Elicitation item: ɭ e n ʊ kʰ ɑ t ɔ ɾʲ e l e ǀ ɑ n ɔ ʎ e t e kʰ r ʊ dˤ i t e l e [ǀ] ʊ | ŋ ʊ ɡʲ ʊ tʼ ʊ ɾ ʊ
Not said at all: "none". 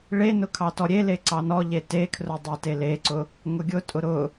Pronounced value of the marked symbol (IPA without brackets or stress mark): ǀ